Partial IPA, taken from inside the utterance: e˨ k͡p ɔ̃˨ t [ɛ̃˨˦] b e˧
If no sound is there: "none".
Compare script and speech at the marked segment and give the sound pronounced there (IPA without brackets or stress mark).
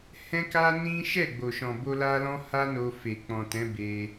ɛ̃˨˦